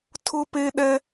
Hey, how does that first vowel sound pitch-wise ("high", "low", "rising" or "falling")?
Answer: high